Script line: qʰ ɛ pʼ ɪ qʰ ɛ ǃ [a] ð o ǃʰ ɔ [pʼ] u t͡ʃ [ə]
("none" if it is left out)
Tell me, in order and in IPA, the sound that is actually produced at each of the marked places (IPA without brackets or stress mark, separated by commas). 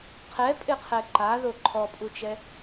a, pʼ, ɛ